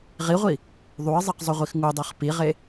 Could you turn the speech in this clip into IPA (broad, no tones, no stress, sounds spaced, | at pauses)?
ʁ i ʁʷ i | ðˤ u ə̯ zˤ ɛ q zˤ o ʁʷ i x ŋ u dˤ ɛ χ p i ʁ e